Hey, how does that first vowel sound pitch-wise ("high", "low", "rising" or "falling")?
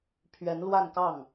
rising